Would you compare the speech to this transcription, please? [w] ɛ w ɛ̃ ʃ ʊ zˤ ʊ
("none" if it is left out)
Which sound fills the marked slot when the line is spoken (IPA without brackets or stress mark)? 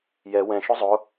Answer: j